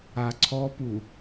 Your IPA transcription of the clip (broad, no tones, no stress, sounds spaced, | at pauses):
a ǀʰ ɔ p u